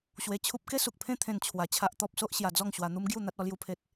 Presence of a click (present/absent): absent